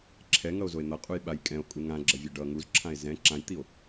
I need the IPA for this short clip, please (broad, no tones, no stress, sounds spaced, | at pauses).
ǁʰ ɛ ŋ ʌ o̯ z o e̯ n̪ ʌ qʼ u j ɓ a j kʼ ɛ̃ o̯ kʼ u ŋ ã ɡ͡ǁ ʌ vʲ ɛ ɖ ʌ ŋ u z ǁʰ ã e̯ z ɛ̃ ǁ ã j t̪ i o̯